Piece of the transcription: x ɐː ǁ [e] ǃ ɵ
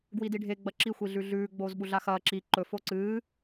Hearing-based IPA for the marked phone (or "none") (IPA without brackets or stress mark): i